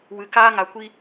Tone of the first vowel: low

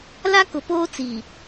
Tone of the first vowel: high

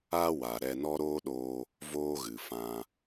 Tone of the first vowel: high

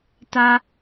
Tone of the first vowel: high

